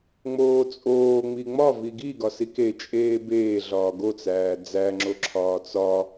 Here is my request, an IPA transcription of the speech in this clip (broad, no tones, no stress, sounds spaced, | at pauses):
ŋ͡m oː t͡sʼ oː ŋ͡m i ŋ͡m ɒ v i ɡ i ɡ ɒ s i k e t͡ʃʼ eː b eː ɮ ɒː ɡ o t͡s æː d͡z æ ŋ͡ǁ o ǁʰ ɒː t͡s ɒ